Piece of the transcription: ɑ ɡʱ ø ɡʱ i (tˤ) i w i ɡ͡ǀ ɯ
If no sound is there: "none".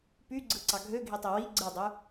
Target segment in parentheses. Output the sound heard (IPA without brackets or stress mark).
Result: tˤ